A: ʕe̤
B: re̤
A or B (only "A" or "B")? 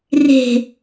B